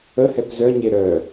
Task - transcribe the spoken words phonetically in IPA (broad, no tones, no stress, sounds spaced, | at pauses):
ə h ɛ p z œ ɲ e ɾ œ